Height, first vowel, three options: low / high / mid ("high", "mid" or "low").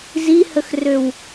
high